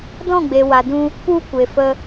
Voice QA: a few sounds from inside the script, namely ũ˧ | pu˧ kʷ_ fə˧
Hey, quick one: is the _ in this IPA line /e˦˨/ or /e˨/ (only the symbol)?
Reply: e˨